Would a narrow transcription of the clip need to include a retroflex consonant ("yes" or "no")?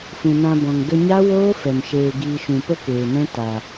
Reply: no